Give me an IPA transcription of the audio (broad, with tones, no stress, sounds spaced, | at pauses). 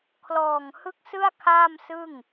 kʰ l ɔː˨˩ ŋ h ɯ˦˥ k̚ s ɯ˥˩ a̯ kʰ aː˥˩ m s ɯ˥˩ ŋ